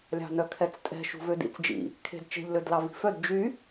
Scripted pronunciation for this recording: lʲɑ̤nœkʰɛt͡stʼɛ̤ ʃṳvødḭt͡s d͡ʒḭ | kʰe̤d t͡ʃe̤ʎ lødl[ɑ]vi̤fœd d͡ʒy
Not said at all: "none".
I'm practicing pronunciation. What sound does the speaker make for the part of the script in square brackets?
ɑ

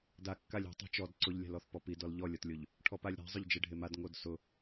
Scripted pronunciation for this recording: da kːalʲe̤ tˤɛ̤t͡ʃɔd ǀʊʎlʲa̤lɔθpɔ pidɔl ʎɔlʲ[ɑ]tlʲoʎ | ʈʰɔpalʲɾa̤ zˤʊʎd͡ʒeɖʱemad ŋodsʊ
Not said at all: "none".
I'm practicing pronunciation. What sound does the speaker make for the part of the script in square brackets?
ɔ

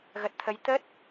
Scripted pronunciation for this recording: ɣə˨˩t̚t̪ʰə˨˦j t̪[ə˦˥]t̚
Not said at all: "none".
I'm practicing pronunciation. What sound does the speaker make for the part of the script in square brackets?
ə˦˥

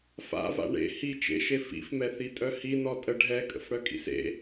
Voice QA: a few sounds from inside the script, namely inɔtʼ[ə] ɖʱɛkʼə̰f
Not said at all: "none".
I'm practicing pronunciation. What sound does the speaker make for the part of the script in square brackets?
ə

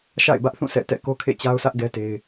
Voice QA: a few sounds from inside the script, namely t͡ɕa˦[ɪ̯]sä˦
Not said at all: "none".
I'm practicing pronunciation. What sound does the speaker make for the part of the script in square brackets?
ʊ̯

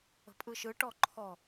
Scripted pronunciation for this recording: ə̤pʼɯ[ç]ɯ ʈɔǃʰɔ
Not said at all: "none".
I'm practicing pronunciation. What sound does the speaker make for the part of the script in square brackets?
ʃ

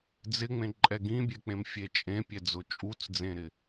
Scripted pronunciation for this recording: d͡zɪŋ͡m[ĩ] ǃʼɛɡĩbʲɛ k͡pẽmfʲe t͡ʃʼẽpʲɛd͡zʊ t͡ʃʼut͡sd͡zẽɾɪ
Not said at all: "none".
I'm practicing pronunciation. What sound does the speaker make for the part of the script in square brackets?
ẽ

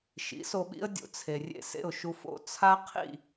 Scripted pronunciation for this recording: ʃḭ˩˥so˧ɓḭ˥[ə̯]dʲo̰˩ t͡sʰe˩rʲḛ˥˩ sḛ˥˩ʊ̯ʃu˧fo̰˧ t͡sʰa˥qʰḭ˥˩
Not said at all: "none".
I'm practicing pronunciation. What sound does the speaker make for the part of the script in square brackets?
ə̯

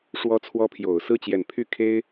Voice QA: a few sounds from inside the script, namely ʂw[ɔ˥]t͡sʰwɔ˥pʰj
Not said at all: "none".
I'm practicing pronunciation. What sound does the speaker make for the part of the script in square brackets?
ɔ˥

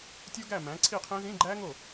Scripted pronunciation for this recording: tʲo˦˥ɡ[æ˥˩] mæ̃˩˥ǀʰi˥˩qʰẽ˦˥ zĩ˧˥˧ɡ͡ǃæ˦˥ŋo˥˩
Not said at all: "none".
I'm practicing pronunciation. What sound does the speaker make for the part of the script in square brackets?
æ˥˩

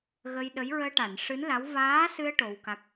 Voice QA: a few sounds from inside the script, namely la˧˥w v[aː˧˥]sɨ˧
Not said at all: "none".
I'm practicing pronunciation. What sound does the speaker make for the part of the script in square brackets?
aː˧˥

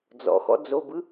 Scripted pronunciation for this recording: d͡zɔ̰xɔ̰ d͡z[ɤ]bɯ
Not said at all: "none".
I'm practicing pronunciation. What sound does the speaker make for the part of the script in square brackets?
o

